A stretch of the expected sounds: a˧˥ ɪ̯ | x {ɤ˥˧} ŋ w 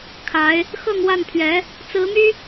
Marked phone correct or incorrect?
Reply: correct